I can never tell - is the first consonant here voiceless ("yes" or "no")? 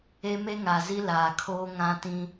no